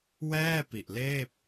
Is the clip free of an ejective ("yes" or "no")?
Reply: yes